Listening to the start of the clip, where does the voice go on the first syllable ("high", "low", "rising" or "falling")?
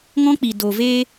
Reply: high